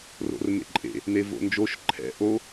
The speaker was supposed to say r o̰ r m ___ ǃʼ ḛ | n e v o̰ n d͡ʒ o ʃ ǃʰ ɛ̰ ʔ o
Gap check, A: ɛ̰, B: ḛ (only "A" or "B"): B